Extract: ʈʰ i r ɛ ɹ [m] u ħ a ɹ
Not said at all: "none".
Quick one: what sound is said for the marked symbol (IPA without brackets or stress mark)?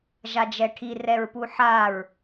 p